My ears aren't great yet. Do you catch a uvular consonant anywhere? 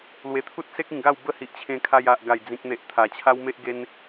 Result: no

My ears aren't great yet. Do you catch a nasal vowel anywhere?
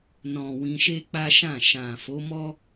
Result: yes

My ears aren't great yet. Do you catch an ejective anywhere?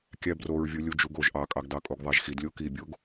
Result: yes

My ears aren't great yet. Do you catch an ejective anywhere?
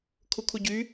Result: no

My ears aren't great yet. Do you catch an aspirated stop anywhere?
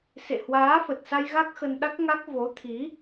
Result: yes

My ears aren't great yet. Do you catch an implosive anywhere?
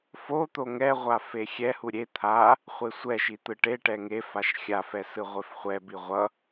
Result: no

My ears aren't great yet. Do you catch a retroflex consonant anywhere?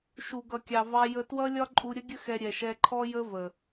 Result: no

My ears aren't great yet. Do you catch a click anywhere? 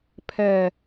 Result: no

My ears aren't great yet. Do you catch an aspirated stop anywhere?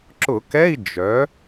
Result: no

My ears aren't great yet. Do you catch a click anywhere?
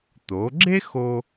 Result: yes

